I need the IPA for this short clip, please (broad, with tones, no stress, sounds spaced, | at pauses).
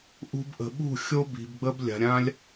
ʔ ṳ˧ b ʔ ə̤˨ ɓ ṳ˦˨ xʲ o˦ b i̤˨ b ɡ͡b ə˦ b lʲ a̤˨ ɾʲ ã˦ lʲ